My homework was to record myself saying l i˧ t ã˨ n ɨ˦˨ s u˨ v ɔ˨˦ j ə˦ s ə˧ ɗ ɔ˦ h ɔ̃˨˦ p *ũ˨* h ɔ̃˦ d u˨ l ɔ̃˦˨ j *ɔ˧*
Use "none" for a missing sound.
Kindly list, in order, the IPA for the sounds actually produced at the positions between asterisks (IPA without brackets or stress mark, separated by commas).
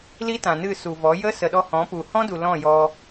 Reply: u˨, ɔ˧